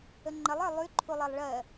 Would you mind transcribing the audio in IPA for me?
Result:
ə ŋ͡ǃ ə lˠ ə˞ lˠ y ǃʰ u lˠ ɜ lˠ ɭ ɜ

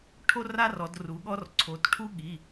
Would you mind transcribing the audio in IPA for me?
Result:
ʈʰ o˦ r a˦ r ɔ˩˧ d r u˩˧ ɠ ɔ˦ r ǀʰ o˩˧ t ʈʰ u˦ ɠ i˩˧˩

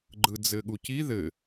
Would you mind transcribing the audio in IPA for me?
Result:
ɡ͡ǃ ɯ d͡z ɘ ɠ u c i ð ɘ

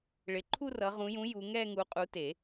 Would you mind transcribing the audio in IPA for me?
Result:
ɭ ɪ˨˦ ǃʰ u˥˧ r ʌ˨˦ ʁ ũ˨˦ j ũ˨˦ j u˨˦ ŋ ɛ˥˧ ŋ u˨˦ qʼ u˨˦ t e˨˩˦

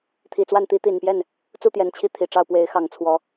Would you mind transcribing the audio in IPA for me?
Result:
t̪ʰ i˨˩ t͡s w a˥˨ n t̪ i˦ t̪ i˨˩ n p j ɛ˥˨ n | t͡s u˥˨ t̪ j ɛ˨˩ n t͡ɕʰ i˥˨ t̪ʰ i˨˩ ʈ͡ʂ ɑ˥˨ ʊ̯ p w e˨˦ ɪ̯ x ɑ˨˩ ŋ t͡sʰ w ɔ˨˦

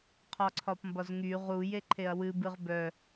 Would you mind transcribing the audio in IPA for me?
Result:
qʰ ɒ ǀʰ ɒ p m b ɒ z ŋ y ʁ u j e ǃʰ e ɐ̯ w ɨ b ɨ ʁ b œ

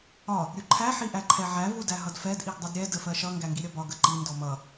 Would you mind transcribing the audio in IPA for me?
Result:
ɒ | ɾʲ u ǃʰ æ ħ i ʔ æ ǃʰ ɛ ʕ æ v u d æ ɦ ʌ d f ɛ d ʔ i ɡ dˤ u d ɾʲ ɛ d ə f ɜ ʃ ʌ ŋ ɡ æ ŋ ɡ i ɾʲ ʌ b ɒ ɡ ə ǃ i n d ɔ m ʌ

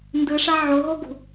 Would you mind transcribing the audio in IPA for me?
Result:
n d ɯ ʂ a ʕ o ɦ o ɡ ṳ

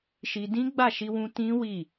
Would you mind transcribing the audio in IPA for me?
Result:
ʃ i˧ d ĩ˦ ɡ͡b a˦˨ ʃ i˧ w ũ˦ t ĩ˦ w i˦˨

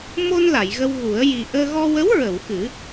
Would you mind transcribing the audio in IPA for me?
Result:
m o˧ n l a˨˩˨ j ɣ ə˧ w ɣ u˨˩˦ ə̯ j i˨˩ ʔ əː˧ ɣ ɔ˧ w ə˧˥ w ɹ ə˨˩˨ w x ɨ˨˩˦

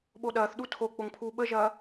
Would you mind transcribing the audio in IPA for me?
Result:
ɓ o ɗ ɐː θ ɗ u tʰ o k͡p o ŋ pʰ uː ɓ ə ʒ ɐː

